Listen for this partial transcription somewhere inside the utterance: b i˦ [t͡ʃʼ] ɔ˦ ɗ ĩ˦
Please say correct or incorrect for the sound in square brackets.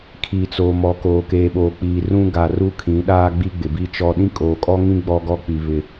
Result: incorrect